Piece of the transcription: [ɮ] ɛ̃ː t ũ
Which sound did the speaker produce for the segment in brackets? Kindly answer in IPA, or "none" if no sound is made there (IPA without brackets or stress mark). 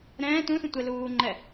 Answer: ɾ